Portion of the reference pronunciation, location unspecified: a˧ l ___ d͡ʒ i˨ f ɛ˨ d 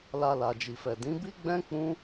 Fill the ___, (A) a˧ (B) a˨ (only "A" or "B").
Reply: B